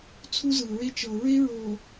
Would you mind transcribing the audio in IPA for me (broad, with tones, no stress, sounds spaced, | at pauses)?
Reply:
t͡sʰ u˦ z ɯ˨ ɹ e˦ t͡ʃ ɤ˨ ɹ e˦ ɹ o˨